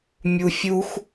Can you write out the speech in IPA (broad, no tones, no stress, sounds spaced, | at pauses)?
mʲ u fʲ u x